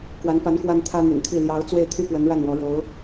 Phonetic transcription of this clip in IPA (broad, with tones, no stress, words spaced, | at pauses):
kwa˧˥npa˧˥n kwa˥nt̪ʰä˥n̪y̰˨˩nt̪ʰi˥˩ ljɑ˧˥ʊ̯ t͡swe˥˩ɪ̯t̪ʰy˥pwə˧˥n ɻa˥˩nwɔ˧˥ɻo˧˥ʊ̯